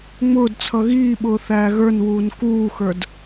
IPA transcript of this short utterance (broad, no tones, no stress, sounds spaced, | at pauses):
ŋ͡m ʊː d t͡sʰ ʌ ɣ iː ɓ ʊː θ æː ɣ ə˞ n w uː n k uː x ə˞ d